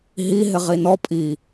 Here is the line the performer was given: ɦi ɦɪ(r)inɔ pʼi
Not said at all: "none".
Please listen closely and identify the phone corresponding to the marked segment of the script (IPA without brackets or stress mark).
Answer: ʁ